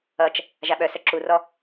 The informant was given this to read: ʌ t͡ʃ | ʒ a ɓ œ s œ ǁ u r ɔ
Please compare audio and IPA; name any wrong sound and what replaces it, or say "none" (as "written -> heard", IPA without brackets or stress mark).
none